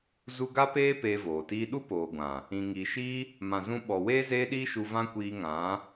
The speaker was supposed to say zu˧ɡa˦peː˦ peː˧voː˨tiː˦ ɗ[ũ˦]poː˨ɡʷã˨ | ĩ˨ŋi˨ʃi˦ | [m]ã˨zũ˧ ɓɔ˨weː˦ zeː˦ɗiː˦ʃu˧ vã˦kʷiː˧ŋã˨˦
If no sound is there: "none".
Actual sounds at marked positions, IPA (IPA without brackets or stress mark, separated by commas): u˦, m